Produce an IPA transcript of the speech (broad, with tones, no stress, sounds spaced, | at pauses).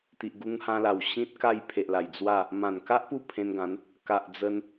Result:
t̪ i˨ ʔ ɡ u˧ ŋ h ã˧ l a˨˩ w ɕ ĩ˦ t̚ k a˥˧ j pʰ e˨ ʔ l a˨˩ j d͡z w a˥˧ | m ã˨˩ n k a˦ ʔ p u˥˧ pʰ ẽ˧ n ɡ ã˨˦ n | k a˨ ʔ d͡z ə˧ n